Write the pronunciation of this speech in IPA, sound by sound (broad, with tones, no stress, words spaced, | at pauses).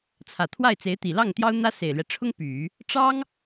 t͡sʰä˨˩t̪ʰwa˥˩ɪ̯t͡se˧˥ɪ̯t̪i˨˩ lɑ˥˩ŋt̪jɑ˥ʊ̯n̪ä˥ se˨˩ɪ̯lɥɛ˦ʈ͡ʂʰʊ˥ŋ py˨˩˦ | ʈ͡ʂɑ˥ŋ